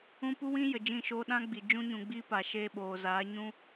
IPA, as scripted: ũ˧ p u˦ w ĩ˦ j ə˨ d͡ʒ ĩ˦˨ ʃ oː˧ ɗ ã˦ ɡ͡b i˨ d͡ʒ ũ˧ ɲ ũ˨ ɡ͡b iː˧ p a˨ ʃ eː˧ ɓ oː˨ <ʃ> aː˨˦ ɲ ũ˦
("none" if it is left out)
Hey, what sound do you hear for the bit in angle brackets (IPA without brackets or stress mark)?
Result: z